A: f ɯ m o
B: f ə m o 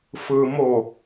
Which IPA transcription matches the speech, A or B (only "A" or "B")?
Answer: A